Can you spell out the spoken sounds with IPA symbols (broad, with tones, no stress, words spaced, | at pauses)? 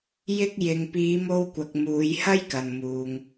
jɪ˧k̚jɪ˨ŋ piː˨˧mo˧wkʷɐ˨k̚ muː˨˧jhɐ˥jkɐ˨nmuː˨ŋ